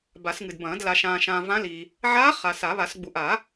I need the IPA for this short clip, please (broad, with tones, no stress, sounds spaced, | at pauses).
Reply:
b a˨˩˦ s ŋ ɨ˨ d b ɐ̃ː˨˩˦ d l a˨ ʃ ãː˨ ʃ ãː˨ v ã˧˥ l i˨ | ʕ aː˧˥ χ a˨ s a˨˩˦ β a˨˩˦ s ɡ͡b u˨ ʔ a˨˩˦